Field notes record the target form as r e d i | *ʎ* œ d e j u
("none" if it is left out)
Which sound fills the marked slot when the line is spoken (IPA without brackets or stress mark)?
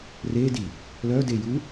l